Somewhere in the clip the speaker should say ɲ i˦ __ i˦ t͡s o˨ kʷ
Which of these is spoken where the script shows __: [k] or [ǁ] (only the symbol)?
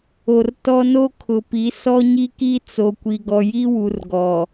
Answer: k